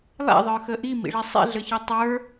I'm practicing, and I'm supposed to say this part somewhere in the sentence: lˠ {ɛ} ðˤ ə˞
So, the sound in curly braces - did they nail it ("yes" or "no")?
no